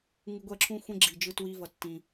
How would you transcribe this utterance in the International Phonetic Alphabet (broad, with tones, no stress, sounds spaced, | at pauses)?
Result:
ŋ u˧ ɡʷ ɛ˦˨ ǁʰ ũ˦ xʷ ẽ˦ ɡ͡ǁ i˨ d͡ʒ ɯ˧ t w i˧ v ʌ˨ tː ĩ˨